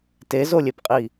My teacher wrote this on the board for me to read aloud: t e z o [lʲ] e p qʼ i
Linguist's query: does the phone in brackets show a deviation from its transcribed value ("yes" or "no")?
no